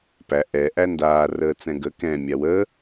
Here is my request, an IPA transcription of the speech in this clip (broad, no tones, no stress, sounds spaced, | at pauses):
p æ ʔ ɛ ʔ æ n d aː r əː t͡s ɛ̃ ɡ ə k ɛ̃ mʲ a w ə